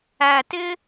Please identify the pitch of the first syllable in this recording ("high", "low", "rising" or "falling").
low